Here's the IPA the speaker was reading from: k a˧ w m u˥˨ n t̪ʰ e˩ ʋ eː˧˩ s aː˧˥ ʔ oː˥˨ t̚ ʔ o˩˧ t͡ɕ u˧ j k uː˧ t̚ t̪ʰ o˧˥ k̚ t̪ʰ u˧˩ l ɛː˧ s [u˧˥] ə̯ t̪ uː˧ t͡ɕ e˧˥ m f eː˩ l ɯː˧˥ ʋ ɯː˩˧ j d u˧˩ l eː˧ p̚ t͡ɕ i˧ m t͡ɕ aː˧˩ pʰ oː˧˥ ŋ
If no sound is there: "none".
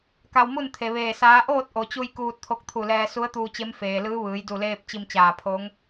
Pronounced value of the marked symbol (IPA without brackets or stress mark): u˧˥